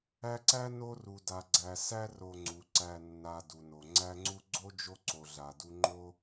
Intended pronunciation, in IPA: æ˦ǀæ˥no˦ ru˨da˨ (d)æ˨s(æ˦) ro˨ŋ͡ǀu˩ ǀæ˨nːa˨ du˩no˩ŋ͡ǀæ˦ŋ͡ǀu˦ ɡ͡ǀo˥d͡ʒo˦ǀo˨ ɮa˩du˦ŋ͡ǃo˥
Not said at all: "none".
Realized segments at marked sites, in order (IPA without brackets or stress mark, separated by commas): ɡ͡ǀ, æ˦